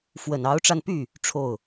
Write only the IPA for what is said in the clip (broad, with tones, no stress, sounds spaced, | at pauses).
f w ə˨˩ n ɑ˧˥ ʊ̯ ʈ͡ʂ a˧ n p y˥˩ | ʈ͡ʂʰ o˥˩ ʊ̯